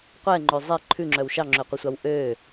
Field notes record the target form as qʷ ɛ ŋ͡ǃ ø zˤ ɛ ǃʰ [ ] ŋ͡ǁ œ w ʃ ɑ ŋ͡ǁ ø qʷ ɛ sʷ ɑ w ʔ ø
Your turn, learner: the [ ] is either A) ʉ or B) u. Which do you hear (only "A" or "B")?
A